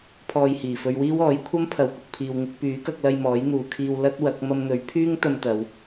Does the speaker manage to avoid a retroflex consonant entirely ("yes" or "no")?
yes